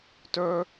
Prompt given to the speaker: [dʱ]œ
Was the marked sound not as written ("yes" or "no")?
yes